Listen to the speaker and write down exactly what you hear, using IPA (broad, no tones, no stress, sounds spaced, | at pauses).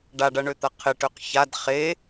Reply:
ɖ a ɖ ɐ ɳ ø t̪ ɐ qʰ ɪ ʈ ø q ç a d χ e